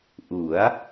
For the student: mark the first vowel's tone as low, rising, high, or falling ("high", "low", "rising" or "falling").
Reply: rising